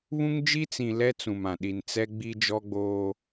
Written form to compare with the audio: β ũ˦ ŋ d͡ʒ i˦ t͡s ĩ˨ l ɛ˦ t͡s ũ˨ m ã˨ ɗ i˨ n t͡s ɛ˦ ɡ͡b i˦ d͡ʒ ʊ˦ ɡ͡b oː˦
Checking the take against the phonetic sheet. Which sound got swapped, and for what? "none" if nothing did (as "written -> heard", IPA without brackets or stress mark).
ʊ˦ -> ɔ˦